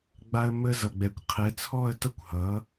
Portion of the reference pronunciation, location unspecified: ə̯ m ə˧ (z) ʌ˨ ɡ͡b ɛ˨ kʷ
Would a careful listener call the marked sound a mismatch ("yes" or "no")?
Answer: no